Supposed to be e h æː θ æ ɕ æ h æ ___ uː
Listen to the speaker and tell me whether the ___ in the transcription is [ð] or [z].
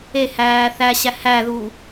ð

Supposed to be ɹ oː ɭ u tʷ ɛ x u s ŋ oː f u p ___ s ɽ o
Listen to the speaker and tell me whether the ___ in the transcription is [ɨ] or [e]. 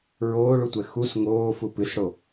ɨ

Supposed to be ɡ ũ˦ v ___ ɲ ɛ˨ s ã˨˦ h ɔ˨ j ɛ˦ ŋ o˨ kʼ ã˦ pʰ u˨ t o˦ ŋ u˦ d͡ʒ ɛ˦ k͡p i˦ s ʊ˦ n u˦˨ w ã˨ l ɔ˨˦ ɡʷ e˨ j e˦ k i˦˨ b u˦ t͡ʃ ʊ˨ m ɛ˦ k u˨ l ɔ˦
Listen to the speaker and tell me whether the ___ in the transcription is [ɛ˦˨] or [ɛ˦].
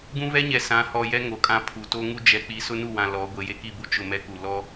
ɛ˦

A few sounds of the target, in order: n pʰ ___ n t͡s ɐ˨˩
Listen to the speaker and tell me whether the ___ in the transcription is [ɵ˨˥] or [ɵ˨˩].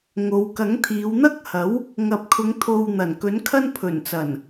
ɵ˨˩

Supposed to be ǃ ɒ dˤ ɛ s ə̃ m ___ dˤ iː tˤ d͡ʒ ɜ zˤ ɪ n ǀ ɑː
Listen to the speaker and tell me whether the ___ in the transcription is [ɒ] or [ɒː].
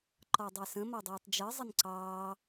ɒ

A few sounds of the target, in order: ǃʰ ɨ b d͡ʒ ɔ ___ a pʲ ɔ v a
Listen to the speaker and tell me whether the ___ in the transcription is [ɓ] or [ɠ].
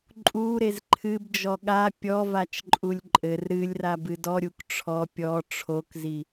ɠ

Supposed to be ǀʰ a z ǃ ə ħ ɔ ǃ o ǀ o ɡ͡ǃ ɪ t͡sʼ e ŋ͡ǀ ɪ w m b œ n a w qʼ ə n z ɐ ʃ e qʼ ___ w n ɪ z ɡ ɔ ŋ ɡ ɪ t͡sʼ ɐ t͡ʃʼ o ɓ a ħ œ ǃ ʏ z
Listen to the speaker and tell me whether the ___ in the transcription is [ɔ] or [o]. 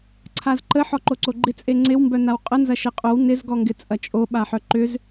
o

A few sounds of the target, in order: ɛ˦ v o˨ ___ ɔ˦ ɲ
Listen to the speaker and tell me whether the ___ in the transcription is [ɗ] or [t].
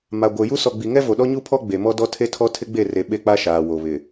ɗ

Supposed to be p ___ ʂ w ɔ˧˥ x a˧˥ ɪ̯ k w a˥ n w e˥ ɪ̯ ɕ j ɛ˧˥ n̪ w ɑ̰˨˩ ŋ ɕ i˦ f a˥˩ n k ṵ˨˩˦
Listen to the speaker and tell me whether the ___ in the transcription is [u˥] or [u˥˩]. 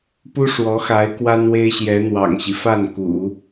u˥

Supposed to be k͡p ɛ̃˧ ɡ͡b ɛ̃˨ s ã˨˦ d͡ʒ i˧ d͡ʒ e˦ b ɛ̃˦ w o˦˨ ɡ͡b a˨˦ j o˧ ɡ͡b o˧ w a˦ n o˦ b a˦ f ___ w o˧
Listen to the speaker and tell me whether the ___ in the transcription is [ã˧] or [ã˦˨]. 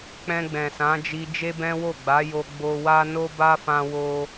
ã˧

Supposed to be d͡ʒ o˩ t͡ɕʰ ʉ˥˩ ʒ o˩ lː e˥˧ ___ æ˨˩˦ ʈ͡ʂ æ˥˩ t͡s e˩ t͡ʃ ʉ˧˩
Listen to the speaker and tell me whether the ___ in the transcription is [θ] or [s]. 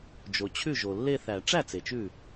θ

